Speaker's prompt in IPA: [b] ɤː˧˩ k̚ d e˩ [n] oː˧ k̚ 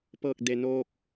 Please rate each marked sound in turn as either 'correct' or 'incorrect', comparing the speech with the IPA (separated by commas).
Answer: incorrect, correct